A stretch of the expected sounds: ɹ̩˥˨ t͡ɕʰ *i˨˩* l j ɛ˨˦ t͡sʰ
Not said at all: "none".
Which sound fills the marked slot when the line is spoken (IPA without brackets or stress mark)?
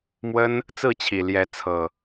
i˨˩